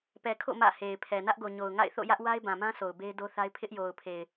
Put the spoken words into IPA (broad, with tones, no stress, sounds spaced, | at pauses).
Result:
p ɛ˨ kʰ o̰˦˨ m ä̰˦˨ h e˨ ɪ̯ pʰ ɛ˨ n ä˦ ʔ ɡ o˨ ɲ o˨ ʊ̯ ŋ a̰˦˨ ɪ̯ θ o̰˦˨ j ä˦ ʔ w a˦ ɪ̯ b ã˨ m ã˦ sʰ o˨ ʊ̯ b e˦ ɪ̯ d o˦ θ a˦ ɪ̯ pʰ ɪ˦ ʔ j o˨ ʊ̯ pʰ e˨ ɪ̯